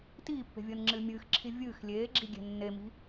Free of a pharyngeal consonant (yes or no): yes